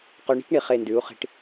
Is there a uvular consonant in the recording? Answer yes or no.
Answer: yes